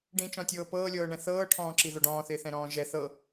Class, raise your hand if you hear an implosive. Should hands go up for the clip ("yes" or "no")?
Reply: no